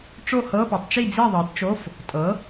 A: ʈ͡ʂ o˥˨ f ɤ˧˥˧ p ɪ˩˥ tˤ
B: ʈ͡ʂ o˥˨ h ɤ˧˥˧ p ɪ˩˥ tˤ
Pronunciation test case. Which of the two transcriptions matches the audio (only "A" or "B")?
B